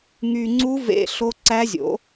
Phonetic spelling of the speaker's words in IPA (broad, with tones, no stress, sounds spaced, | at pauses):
ŋ y˧ ŋ͡ǀ u˦˥ v ḛ˦˥ ɬ o˦˥ ǀ æ˦˥ zʲ o̰˨˥